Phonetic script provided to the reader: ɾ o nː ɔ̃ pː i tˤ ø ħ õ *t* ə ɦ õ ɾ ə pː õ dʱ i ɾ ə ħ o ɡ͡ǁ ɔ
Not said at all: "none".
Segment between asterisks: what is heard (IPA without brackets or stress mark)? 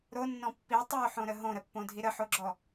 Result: ɾ